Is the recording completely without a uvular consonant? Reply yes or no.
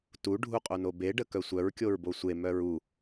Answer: no